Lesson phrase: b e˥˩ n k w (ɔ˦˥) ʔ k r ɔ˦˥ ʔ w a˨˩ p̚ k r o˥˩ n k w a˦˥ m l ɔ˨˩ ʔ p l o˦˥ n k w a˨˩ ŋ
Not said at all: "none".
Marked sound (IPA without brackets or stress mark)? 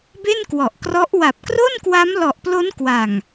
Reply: ɔ˨˩